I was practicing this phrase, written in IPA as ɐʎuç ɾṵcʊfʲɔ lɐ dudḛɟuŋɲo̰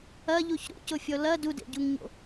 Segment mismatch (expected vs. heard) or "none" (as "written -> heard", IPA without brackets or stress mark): none